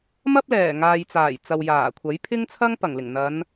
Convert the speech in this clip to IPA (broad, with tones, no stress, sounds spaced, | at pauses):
m ɐ˥ p̚ l ɛː˨˩ ŋ aː˨ j t͡s aː˨˩ j t͡s ɐ˨ w j aː˨˩ kʷʰ ɐ˨˥ j pʰ ɪ˥ ŋ t͡sʰ ɐ˥ ŋ p ɐ˨˩ ŋ l ɪ˨˩ ŋ n̪ ɐ˨˧ n